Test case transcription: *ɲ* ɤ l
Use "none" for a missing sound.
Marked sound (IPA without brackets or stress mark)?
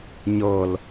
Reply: ɲ